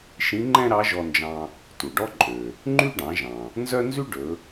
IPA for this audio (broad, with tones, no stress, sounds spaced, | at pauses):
ʃ ĩ˧˥ ŋ͡ǃ ɛ̃˥ ɾ ɑ˧˥ ʒ ɔ˧ n d͡ʒ ɑ̃˧ | t u˩ ɖ ɔ˥ ǃʼ ø˩ | ŋ͡ǃ y˥ ɖ ɑ̃˩˧ ʒ ɑ̃˩ | n z œ˥ n z y˥ ɖ ɵ˩˧